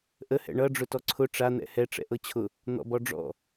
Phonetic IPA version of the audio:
ʔ ə h ɛ̰ ɳ ʌ ɖ͡ʐ ʊ t ɔ ǀʰ ʊ ʈ͡ʂ a n̪ ɛ̰ h ɛ ʈ͡ʂ ɛ̰ ʔ ɤ t͡ɕʰ ʊ | n̪ ɔ̰ b ɔ ɖ͡ʐ ɔ̰

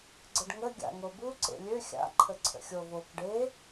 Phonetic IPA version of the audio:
ɡ͡ǀ ə ɖ ŋ ə ɡʲ a̰ ŋ o b u ǀ ḛ lʲ ø xʲ a̰ ǃʰ ə ǀʰ ə̰ xʲ o v o k ɖ e

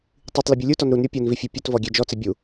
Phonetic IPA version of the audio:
tˤ i tˤ l ɪ bʲ u lʲ u t ɔ n ɾ u n ɾʲ o pʲ o n v i fʲ e pʲ ʊ t v ɔ ɡʲ ɛ d͡ʒ ɔ t͡s ɪ bʲ u

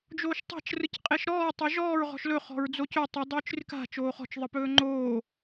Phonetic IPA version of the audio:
d͡ʒ oː ʃ tˤ a̤ t͡ʃ r ɯ c qʼ e ʃ ɾ ɔː tˤ o ʒ ɔː ɹ ʁ ɔ̤ ʃ l ɵ χ ɔ̤ ɹ d͡z o c ɵ tˤ ɨ dˤ ɵː t͡ʃ r ɨ k a̤ t͡ʃ oː χ ɔ̤ t͡ʃ ðˤ ɯ p ɵː ŋ͡ǃ oː

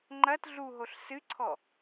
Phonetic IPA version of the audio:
ŋ͡ǃ ɐ t ɮ u ɦ o ɬ s ɨ ǀʰ ɔ

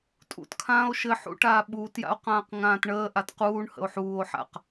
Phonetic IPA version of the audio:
tʼ ṵ t kʰ ãː o̯ ʃ ɘ ħ ṵ ʈ aː ɓ uː t j a̰ o̯ q ãː q ŋ ãː t ɳ əː ʔ a t q uː ɳ h ə̰ o̯ ħ uː o̯ ħ a̰ q

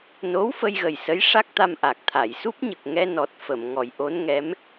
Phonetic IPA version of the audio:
n o˧˥ w f ə˧ j ɣ ə˨˩ j s ə˧˥ j ʂ a˦˥ k̚ t̪ a˧ m ʔ a˨˩ k̚ t̪ʰ a˨˩˨ j s u˦˥ p̚ ɲ ə˨˩ k̚ ŋ ɛ˧ n ɔ˨˩ t̚ f ə˨˩˨ m ŋ ɔ˨˩˦ j ʔ o˧˥ n ŋ ɛ˧˥ m

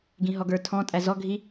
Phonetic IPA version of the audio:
ɡ ĩ ɦ ɔ ɡ ə˞ tʰ ɔ̃ tʼ æ z ɔ ɡʱ i

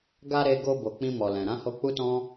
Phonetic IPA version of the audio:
ɡ a˧ ɾ e˧ ɡ o˧ b o˨ k͡p ĩ˧ m ɔ˨ l ɛ̃˨ ɾ ã˨˦ h o˧ k͡p u˦ t ɔ̃˦

